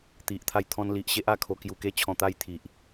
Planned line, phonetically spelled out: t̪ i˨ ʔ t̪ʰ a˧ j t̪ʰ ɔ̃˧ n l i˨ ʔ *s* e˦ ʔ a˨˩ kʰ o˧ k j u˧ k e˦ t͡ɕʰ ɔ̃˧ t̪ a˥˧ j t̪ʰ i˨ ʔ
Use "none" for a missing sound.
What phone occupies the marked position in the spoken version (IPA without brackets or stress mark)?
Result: ɕ